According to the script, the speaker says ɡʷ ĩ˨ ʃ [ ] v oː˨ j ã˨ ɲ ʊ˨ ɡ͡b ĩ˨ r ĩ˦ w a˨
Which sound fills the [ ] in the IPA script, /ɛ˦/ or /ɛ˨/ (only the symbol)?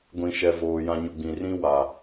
ɛ˨